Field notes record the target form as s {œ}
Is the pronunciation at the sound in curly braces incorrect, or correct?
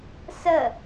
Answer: incorrect